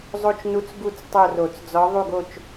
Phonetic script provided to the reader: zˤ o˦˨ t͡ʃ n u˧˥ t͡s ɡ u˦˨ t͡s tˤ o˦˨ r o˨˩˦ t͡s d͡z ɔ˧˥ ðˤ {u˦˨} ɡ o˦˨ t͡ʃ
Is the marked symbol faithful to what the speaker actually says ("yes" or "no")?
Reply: yes